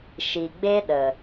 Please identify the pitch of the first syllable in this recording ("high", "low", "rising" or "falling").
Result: low